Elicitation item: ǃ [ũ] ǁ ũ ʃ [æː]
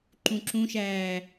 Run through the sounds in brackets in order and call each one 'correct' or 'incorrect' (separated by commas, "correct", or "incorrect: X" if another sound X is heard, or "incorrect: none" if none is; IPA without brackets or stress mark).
correct, correct